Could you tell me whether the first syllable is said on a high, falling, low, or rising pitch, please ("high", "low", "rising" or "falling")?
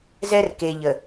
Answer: high